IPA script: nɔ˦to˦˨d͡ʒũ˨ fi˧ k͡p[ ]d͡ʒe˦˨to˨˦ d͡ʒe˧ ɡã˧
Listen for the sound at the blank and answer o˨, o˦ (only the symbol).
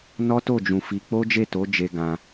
o˦